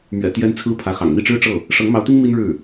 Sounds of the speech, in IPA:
m ɥ ɛ̰˨˩ t̪ j ɛ˥ n t͡sʰ ɹ̩˥ pʰ ä˧˥ x ɑ̰˨˩ ŋ n̪ i˥˩ ʈ͡ʂ ɻ̩˥ ʈ͡ʂ ɤ˥˩ | ʂ ɤ˧˥ ŋ m ɑ˧˥ ʊ̯ t̪ i˥ ŋ m i˥ n ɻ ɻ̩˥˩

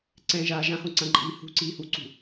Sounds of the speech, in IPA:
ǀ ɛ̃ ʒ aː ʒ ã h õ ǀ ã ǃʼ iː h ṳ ǀ iː h u ǀ ṳ

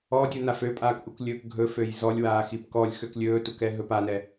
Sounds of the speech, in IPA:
ɔ dʲ u n a f ø pʼ aː k ʔ u k lʲ ɵː k ɡʱ ɵ f ø j z ɔ lʲ w aː x i p k ɔ lʲ x ø k lʲ ɵː t u k ɛ ɦ ɵ p a n ɛ

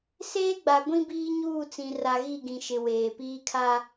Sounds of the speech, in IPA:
s eː˦ ɡ͡b a˨ ɡʷ ĩ˦ b iː˦ ɲ uː˦˨ t͡s ĩ˨ r a˨ ɣ i˦˨ ɡ ĩ˨ ʃ ɪ˨ w eː˨ p iː˦ kʰ a˦

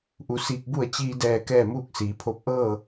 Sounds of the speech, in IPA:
ʔ u˩˧ s iː˧ k̚ b u˥˨ ə̯ t͡ɕ iː˧ d ɛː˧˩ k ɛː˥˨ m uː˥˨ k̚ s iː˩˧ pʰ o˥˨ p̚ ʔ ɤː˥˨

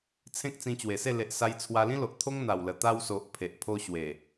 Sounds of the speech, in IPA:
t͡sʰ ẽ˦ k̚ t͡s ĩ˧ t͡ɕ w e˨˩ s e˥˧ l e˨ ʔ s a˧ j t͡sʰ w a˧ l ĩ˦ l o˨ ʔ t̪ʰ o˦ ŋ n̪ a˨˩ w l ə˨˩ t̪ a˧ w s o˨ ʔ pʰ e˨ ʔ pʰ o˦ ɕ w e˨˩

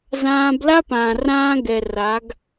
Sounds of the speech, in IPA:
z ãː˦ b l a˦ p ãː˨ r ãː˦ ɡ ɛ˨ r a˨˦ ɡ

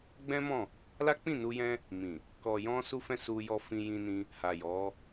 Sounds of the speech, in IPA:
ɡ͡b ɛ̃˦ m ɔ̃˦˨ | l a˦ k͡p ĩ˦˨ n u˧ j ɛ̃˦ | m ĩ˨ | k ɔ˨ j ɔ̃˧ s u˧ f ɛ̃˦ s u˧ j ɔ˧ f ĩ˧ j ĩ˧ n ĩ˧ | h a˨ j ɔ˨˦

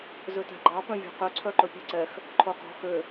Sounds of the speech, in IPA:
z ø t æ̤ ɡ͡ǃ ɑ p œ̃ vʲ ɔ̤ q ø ǀʰ œ ǃ ɵ pʲ ɛ ǀ ɛ x | ǃʰ o q ɔ̤ x ø

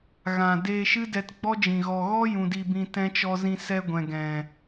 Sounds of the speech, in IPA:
ɣ ã˨ d eː˧ ʃ ɨ˦ d ɛ˧ t ɡ͡b ɔ˦ d͡ʒ ĩ˨ ɣ ɔ˨ ɣ ɔ˦ j ũ˨ d i˧ b ĩ˧ t ɛ̃˦ t͡ʃ ɔ˧ z ĩ˧ s ɛ˧ ɡʷ ɛ̃˨ ɡ ɛ̃˨

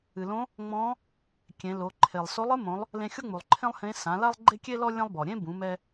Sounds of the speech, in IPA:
ɨ˩ l õ˧˥ | ŋ͡m ɔ̃˧˥ | kʲ ẽ˩˧ l o˩˧ ǃʰ e˩ lˠ s o˧˥ lˠ ɨ˧˥ m õ˩˧ lˠ | l ẽ˧ xʲ o˥ ŋ͡m u˩ lˠ ǃʰ ẽ˥ lˠ h ẽ˧˥ s ã˩˧ l a˥ lˠ ɡ͡ǃ e˥ kʲ e˥ l ɔ˥ lʲ ẽ˥ lˠ b ɔ˩ ɾʲ ẽ˥ b ũ˩˧ m ɛ˧

